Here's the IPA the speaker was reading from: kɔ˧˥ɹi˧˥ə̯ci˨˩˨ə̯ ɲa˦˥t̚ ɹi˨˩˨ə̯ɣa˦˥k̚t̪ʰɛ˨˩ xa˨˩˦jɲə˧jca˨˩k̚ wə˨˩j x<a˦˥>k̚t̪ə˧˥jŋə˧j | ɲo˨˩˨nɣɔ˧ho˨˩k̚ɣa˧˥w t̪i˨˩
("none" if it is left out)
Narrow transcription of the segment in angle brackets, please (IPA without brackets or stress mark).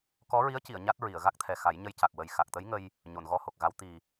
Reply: a˨˩